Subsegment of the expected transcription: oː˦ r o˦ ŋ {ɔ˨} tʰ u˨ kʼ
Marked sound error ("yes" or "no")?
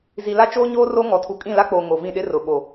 no